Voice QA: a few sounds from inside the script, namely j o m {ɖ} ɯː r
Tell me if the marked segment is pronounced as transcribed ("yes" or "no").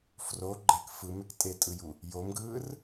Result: no